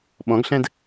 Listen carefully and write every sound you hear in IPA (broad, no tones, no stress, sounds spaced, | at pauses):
ɓ ɔ̃ ɡ ɬ ɛ̃ d